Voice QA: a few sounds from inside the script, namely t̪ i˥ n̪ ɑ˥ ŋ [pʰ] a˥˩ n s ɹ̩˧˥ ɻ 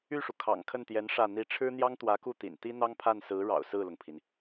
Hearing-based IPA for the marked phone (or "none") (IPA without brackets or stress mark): pʰ